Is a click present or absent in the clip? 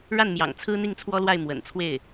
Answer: absent